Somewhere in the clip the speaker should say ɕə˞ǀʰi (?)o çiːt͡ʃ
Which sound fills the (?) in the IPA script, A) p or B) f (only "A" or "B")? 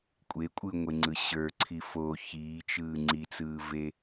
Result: B